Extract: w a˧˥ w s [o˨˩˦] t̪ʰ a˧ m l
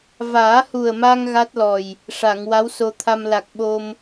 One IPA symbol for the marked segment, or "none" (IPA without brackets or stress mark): o˧